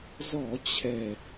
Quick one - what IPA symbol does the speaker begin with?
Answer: z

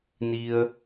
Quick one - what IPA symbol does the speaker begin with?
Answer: n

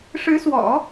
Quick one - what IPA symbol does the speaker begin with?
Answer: ʂ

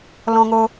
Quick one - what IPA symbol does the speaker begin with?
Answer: l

